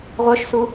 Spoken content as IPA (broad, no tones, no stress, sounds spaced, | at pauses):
ʁʷ œ ʃ s u